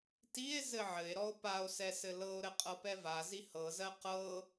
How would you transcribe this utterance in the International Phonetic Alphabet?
tie̯ zɘʕɘe̯ɾɔo̯ pao̯sɛ sɘlɤo̯ɾɘ qʼɤpɛvazi hɤzɜ qɤ

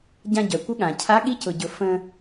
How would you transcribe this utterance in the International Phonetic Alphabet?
ɟã˧ɟœ˩kʷə˧˥ ɠã˩cʰa˧˥ ɠi˧˥cʊ˩ɟʊ˩ fə̃˧

